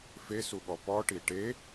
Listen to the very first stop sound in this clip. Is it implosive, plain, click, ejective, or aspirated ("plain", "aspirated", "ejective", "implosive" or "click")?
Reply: implosive